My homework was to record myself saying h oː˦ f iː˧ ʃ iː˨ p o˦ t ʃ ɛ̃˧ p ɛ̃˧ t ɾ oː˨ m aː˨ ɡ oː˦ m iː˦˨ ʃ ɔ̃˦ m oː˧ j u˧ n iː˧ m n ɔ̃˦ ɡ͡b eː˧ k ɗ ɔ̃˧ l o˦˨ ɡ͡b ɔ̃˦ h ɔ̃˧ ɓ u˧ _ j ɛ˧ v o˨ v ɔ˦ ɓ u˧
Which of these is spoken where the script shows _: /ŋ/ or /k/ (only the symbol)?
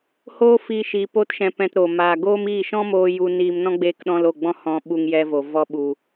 ŋ